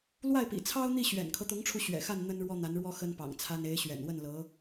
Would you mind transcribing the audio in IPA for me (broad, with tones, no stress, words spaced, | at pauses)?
lwa˥˩ɪ̯pḭ˨˩t͡sʰɑ˥ʊ̯n̪i˥˩ ɕɥɛ̰˨˩nkʰɤ˦t̪ʊ˧˥ŋʈ͡ʂʰu˧ ɕɥɛ̰˨˩xa˥˩n n̪ə˥nɻwɔ˥n̪a˧˥nɻwɔ˥ xə˥npɑ̰˨˩ŋt͡sʰa˥n e˧˥ɪ̯ɕɥɛ̰˨˩nwə˥˩nlɤ˧˥